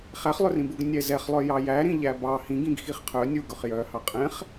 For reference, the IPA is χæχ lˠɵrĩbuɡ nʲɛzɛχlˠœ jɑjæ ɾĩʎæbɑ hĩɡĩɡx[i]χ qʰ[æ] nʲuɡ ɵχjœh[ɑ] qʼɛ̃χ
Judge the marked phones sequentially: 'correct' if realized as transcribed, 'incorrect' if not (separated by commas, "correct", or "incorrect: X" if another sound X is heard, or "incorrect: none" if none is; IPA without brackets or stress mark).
correct, incorrect: œ, correct